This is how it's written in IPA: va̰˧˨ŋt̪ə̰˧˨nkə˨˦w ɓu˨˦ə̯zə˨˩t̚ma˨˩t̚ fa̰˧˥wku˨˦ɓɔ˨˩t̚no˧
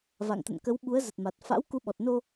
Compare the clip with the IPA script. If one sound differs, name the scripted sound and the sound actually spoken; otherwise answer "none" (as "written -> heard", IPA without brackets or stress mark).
none